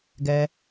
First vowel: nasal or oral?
oral